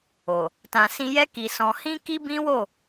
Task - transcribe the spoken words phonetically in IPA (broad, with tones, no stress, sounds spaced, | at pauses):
o˨ | t ã˨ s ĩ˧ j ɛ˦ k i˧ s ɔ̃˧ h ĩ˦ k i˦ b ĩ˦ w o˦˨